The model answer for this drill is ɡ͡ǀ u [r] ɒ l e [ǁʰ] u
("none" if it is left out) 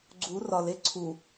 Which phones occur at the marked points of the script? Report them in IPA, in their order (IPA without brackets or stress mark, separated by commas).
r, ǀʰ